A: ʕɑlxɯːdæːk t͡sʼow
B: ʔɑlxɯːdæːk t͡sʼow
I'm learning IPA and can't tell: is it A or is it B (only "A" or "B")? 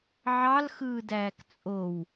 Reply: A